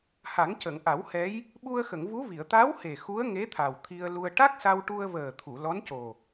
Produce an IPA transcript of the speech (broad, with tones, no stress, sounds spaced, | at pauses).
h a˨˩˦ ŋ c ə˨˩˨ ŋ ʔ a˨˩˦ w h ɛ˧˥ j | ɓ u˧ ə̯ x ə˨˩˨ ŋ v u˧˥ v i˨˩˨ ə̯ t̪ a˧˥ w h e˨˩ x u˧˥ ə̯ ŋ e˧˥ t̪ʰ a˨˩ w t̪ʰ i˧ ə̯ l u˧ ə̯ ʈ a˦˥ k̚ s a˧ w ʈ u˧ ə̯ v əː˨˩ t̪ʰ u˨˩˨ l ɔ˧˥ n c o˨˩